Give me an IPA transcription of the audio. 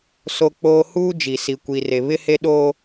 so˦k͡poː˦ huː˦d͡ʒi˨si˨ kʷi˨re˨ βɪ˦he˦ɗoː˦

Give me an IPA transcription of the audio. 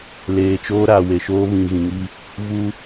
leː˨t͡ʃoː˦ɾaː˨we˨ ʃoː˦βĩ˨ɣĩ˨ŋi˦ | vu˦

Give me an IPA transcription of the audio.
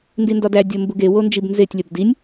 ndindɒdæ dʲombuɡe wond͡ʒibnzetʲ lʲɒbdinʲ

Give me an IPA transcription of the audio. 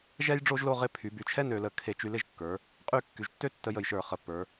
ʒɛ˥j ɖ͡ʐo˥ʒlo˥˧ʁɪ˥˧ pʰy˩˧by˧˩t͡ʃʰɛ˥nø˩˧ lə˧ kʰe˧t͡ʃy˧lɪ˥˧ʒkːə˞˩˧ | qʼy˥˧ kːy˩˧ʒtːø˥tːə˧jə˧˩j ʃə˞˧˩ χə˧˩pːə˞˩˧

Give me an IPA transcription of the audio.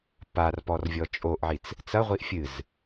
parpɔr vʲɔt͡ʃʼoʔʕit͡s | t͡sɐʁʷiʔ fʲɨz

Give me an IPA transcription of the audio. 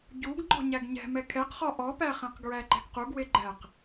ɟuɡ ŋ͡ǃɔ̤ɲæɡɲɛ̤ mɛkʰɛqχɔ ʔɔpæχẽq ɡɹæǃɛ̤ɡquɡ weɡ͡ǃæq

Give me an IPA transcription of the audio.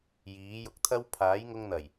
jiː˨˥jʊ˧k̚t̪ʰɐ˥w pʰaː˨˥jŋʊ˧ŋn̪ɐ˨˩j

